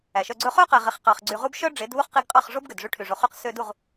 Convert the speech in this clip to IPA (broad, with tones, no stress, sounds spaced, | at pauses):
æ˨ ʃ œ˧ ɡ͡ǀ ɵ˧ χ œ˦ q æ˨ ʁ i˨ χ q ɑ˨ χ ɡ͡ǀ y˨ ʁ u˧ b ʃ œ˦ ɖ͡ʐ e˨˦ d β u˦ χ q i˧ ɡ qʼ ɑ˦˨ χ ʐ o˦ b ɡ ø˨ d ʐ y˧ ʈʰ y˨ ʐ o˨ χ y˧ q s ø˧ d u˦˨ ʁ